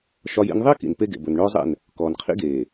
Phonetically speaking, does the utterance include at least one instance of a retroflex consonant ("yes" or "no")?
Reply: yes